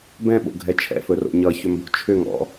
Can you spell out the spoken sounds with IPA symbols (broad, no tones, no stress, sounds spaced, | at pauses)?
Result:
b ɛ̃ ɓ o̰ ɡʱ ɛ t͡ʃʰ ɛ̰ f ɵ r o̰ ɲ ʌ ç ʏ m b o̤ t͡ʃʰ ʏ ŋ ɔ̰